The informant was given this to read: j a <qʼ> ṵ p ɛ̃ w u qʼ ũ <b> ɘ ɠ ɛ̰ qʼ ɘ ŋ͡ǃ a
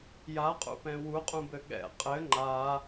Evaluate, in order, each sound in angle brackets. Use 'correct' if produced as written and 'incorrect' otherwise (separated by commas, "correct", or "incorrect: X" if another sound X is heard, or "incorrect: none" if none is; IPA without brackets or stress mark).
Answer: correct, correct